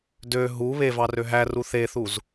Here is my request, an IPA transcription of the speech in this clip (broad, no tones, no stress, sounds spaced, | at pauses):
d ø ɦ u β e v ɑ r ø ɦ æ r u θ e θ u z